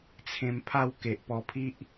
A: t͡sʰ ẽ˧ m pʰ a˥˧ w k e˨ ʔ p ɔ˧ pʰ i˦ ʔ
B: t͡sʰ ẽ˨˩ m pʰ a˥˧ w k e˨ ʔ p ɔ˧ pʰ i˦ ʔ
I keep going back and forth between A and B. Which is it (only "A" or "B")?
A